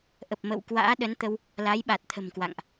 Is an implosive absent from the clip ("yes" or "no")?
no